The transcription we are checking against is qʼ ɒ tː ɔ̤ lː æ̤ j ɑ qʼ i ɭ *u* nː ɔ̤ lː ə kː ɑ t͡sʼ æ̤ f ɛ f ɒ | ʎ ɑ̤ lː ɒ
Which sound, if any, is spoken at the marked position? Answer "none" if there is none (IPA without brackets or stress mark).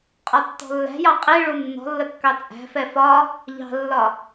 u